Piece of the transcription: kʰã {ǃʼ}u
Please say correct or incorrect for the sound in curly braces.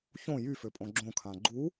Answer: incorrect